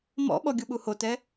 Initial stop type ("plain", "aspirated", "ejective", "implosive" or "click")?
implosive